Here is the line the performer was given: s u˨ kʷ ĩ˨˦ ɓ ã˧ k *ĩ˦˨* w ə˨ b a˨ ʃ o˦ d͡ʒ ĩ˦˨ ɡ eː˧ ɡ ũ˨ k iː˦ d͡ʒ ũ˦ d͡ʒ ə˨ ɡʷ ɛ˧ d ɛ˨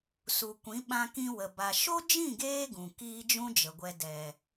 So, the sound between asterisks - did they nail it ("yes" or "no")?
no